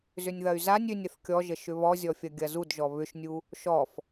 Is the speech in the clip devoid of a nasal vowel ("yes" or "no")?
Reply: yes